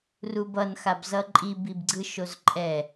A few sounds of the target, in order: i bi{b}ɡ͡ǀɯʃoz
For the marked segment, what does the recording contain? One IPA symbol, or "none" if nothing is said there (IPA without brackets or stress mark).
b